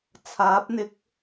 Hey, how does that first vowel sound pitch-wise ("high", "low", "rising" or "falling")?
rising